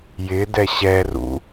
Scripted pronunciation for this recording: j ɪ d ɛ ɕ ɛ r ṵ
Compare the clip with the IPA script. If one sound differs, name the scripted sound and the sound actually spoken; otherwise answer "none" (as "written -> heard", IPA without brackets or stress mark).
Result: none